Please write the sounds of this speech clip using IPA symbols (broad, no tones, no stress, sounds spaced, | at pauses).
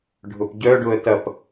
ɖʱ ʊ p ɟ œ ɖ ʊ ə̯ t ɐ p